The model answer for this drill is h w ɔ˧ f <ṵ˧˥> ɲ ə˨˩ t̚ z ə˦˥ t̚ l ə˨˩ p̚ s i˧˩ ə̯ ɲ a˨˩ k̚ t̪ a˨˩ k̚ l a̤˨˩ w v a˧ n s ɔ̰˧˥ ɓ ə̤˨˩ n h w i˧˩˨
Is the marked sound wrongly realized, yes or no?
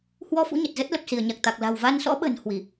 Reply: no